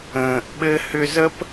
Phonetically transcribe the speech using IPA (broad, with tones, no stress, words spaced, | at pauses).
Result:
ə̃ː˨ʔ ɓɘ˧hʏ˧zə˦p